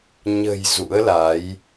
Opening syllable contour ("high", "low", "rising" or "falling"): low